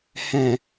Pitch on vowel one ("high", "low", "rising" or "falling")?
low